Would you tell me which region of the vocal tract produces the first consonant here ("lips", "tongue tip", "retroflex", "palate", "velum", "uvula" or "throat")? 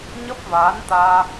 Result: palate